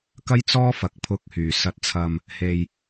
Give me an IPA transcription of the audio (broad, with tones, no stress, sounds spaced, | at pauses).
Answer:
k ɐ˥ j t͡s ɔː˥ f ɐ˨ k̚ pʰ ʊ˧ k̚ h yː˨˩ s ɐ˨ t̚ t͡sʰ ɐ˨ m | h e˨ j